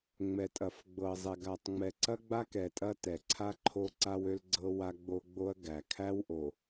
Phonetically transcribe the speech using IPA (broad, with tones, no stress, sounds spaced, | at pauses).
ŋ͡m ɛ˨ tʼ ɐ˨ f ɡ͡b ɤ˨ zˤ ɛ˨ ɡ a˨ tˤ ŋ͡m ɛ˨ ǀ ɐ˦ ɡ͡b a˦ k ɛ˨ tʼ ɐ˦ t ɛ˨ ǀʰ a˦ ǃʰ o˦ ǀ a˦ w ø˦ l ɡ͡ǀ ɤ˦ w a˦ ɡ͡b o˦ ɡ͡b o˦ ɐ̯ ɡ æ˨ kʰ æ˦ w ʔ o˨